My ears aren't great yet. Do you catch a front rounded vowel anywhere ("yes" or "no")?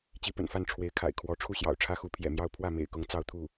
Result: no